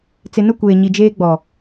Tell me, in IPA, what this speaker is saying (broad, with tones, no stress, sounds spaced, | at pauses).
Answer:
t͡s ɪ˨ n ʊ˦˨ kʷ eː˨ ɲ i˨ d͡ʒ eː˦ ɡ͡b ɔ˨